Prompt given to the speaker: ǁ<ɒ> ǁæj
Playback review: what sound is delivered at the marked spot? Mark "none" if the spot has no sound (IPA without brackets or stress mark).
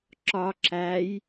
ɒ